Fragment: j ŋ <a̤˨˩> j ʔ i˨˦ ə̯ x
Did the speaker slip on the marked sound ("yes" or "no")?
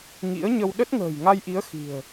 yes